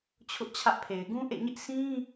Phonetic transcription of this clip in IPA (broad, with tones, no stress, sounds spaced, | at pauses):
t͡ɕʰ ʊ˦ ʔ t͡ɕʰ ä˦ ʔ pʰ e˨ ɪ̯ ɡ ũ˦ ʔ ḛ˦˨ ɲ ɪ˦ ʔ s ĩ˦